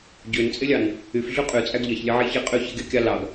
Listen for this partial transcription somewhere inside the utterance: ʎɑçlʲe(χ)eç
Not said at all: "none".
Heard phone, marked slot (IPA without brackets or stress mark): ʕ